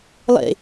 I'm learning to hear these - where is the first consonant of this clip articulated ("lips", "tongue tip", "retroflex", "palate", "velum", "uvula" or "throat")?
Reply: tongue tip